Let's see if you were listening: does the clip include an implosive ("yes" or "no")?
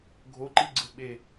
yes